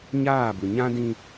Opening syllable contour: falling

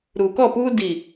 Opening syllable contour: low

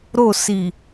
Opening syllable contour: falling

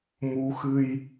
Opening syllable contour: rising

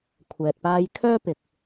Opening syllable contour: low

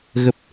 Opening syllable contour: low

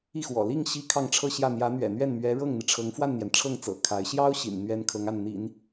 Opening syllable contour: falling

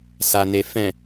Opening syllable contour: low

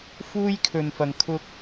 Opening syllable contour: high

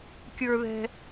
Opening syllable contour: high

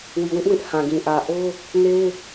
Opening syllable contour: low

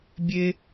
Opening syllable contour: high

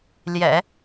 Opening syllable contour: low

